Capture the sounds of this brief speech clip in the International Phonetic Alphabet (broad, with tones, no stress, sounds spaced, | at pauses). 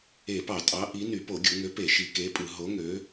e˧˩˧ p ɑ˧˩˧ tʼ ɑ˨˥ ʔ i˨˥ n y˧˩˧ p o˧˩˧ ɡʲ u˧˩˧ ŋ ø˨˥ p e˧˩˧ ʃ i˧˩˧ k e˨˥ pʼ ɯ˧˩˧ ɦ o˨˥ ŋ ø˨˥